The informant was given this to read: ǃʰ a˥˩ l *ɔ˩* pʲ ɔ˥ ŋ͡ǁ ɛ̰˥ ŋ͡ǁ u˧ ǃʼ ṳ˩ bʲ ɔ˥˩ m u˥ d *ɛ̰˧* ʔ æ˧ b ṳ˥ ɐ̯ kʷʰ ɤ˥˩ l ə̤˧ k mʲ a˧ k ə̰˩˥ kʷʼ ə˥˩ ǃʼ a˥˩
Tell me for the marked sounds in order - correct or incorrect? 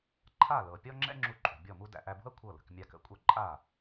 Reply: incorrect: ɤ˩, incorrect: æ̰˧

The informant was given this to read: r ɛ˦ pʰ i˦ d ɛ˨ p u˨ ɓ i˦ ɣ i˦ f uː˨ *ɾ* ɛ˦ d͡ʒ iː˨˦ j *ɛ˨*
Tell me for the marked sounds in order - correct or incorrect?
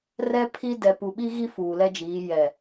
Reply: incorrect: l, correct

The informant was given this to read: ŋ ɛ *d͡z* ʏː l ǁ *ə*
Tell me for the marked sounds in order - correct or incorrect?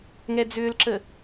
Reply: correct, correct

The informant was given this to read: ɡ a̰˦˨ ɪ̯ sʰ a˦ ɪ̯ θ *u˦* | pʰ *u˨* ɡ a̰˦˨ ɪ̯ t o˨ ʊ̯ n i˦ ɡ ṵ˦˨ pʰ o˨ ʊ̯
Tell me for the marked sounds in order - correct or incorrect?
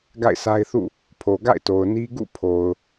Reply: incorrect: ṵ˦˨, incorrect: o˨

